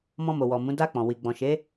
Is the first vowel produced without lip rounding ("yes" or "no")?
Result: no